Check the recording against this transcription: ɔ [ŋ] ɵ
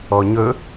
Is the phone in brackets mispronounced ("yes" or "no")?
yes